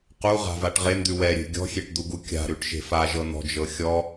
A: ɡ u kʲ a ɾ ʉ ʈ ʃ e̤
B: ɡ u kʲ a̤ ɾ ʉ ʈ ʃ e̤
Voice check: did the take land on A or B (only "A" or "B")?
B